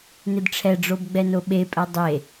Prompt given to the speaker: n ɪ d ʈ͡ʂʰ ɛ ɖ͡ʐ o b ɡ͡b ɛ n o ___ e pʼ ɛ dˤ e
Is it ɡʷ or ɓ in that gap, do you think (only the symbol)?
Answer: ɓ